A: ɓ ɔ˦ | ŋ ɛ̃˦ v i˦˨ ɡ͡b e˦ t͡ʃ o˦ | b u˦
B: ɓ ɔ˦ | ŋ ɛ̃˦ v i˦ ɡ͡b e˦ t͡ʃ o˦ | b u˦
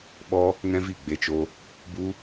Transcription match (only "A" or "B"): A